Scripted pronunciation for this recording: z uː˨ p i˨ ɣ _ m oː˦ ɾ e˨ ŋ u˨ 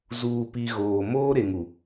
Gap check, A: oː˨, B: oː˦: A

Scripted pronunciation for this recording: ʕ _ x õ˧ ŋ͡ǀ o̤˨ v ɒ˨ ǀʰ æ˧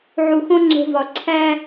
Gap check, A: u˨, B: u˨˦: A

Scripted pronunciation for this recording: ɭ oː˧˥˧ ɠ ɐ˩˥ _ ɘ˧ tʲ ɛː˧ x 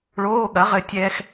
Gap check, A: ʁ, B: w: A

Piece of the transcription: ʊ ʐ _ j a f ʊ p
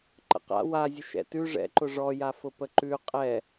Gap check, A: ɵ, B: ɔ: B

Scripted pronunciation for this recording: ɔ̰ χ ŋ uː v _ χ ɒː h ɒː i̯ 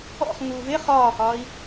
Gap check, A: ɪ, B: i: A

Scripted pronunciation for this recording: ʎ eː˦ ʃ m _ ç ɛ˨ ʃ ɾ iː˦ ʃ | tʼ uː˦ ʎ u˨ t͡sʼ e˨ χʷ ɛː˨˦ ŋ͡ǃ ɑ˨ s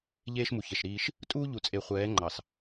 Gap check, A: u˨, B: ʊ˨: A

